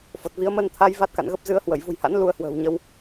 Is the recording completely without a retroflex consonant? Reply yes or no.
yes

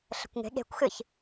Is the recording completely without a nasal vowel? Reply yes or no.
yes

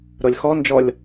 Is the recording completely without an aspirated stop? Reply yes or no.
yes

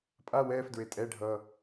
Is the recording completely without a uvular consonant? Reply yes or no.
yes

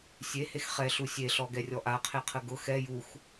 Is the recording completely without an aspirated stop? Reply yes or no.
no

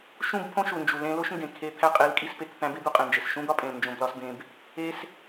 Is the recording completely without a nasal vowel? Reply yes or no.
no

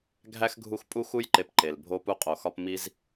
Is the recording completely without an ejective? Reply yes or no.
no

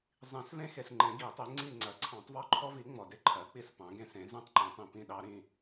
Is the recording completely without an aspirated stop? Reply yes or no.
no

